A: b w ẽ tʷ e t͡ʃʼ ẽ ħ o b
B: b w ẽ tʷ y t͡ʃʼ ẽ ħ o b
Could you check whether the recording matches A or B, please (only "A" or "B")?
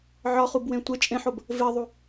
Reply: A